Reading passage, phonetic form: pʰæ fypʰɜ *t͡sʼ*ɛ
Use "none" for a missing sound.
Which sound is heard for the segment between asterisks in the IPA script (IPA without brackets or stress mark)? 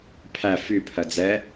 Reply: d͡z